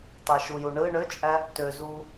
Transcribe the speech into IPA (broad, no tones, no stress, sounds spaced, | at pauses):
t ɑ ʃ u j u ɳ ɯ ɳ ø t͡ʃʼ æ | t ø z u